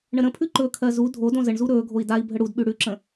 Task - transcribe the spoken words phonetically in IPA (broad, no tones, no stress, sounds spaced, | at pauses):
ɳ ə ɾ ə̃ pʰ ʉ ǃ ɵ kʰ ɜ z u dʱ o d õ z ə ɳ z u ɾ ɵː ɡʱ o i̯ d a i̯ bʱ ə ɽ u d ɓ ʉ ɽ ʉ ǁ ə̃